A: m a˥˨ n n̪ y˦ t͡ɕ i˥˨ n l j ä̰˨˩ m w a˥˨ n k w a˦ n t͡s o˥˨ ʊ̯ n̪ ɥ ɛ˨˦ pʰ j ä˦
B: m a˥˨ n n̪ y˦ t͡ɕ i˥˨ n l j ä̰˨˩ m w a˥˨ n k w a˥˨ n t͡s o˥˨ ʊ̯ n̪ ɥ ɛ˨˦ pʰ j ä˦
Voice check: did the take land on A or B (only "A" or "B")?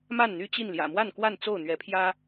B